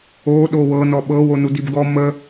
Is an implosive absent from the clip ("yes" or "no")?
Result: no